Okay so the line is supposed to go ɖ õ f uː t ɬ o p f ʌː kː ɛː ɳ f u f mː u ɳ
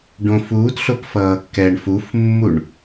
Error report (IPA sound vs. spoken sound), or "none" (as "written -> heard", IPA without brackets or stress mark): none